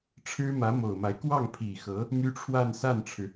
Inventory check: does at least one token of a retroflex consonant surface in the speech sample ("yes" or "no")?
yes